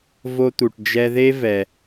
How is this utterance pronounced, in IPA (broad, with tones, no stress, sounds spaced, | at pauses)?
v o˧ t̪ u˩ ʈ d͡ʒ ɛ˧ ð e˥ v ɛ˩